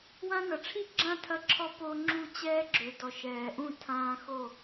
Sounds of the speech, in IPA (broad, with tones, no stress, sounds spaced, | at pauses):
w ã˦ n ɐ˩ ʈ͡ʂʰ i˥˨ ɡ͡ǁ ã˥˨ tʰ ɐ˦ ǁʰ ɔ˦ p o˦ ŋ͡ǁ u˥˨ t͡ɕ ɛː˦ ɡ͡ǁ ø˩ d ɔ˩ ʃ ɛː˩ ʔ ũ˥˨ tʰ ãː˦ x o˥˨